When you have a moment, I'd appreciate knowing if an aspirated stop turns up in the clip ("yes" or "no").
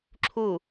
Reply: yes